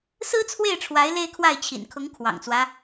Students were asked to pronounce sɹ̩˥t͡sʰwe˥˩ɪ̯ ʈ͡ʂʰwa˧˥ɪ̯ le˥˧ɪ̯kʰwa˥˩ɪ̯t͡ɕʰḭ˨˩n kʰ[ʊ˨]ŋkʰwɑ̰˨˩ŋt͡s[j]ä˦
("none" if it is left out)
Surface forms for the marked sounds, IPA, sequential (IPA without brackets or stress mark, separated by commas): ʊ˧˥, w